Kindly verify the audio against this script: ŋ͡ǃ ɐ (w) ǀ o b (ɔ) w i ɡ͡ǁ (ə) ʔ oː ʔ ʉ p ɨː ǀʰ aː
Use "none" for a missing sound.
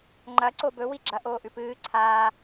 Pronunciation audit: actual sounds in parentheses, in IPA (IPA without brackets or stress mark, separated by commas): none, ɵ, ɐ